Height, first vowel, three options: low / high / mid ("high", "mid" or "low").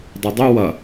high